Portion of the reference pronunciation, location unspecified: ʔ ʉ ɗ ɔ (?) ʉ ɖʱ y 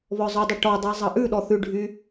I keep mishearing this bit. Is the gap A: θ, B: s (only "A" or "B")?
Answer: A